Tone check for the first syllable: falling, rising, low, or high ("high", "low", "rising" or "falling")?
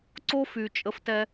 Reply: high